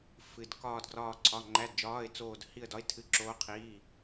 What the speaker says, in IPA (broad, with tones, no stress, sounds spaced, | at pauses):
f ɨ˧˥˧ d k ɒː˥˧ d ɡ r ɒː˥˧ ǀʰ ɒ˧˥˧ ŋ͡ǃ æ˧˥˧ d d͡ʒ ɒː˧˥˧ ɪ̯ t͡s oː˥˧ d h i˥˧ ə̯ d ɒ˧˥˧ ɪ̯ tʰ ɨ˧˥˧ ǁ oː˦˥ qʰ iː˧˥˧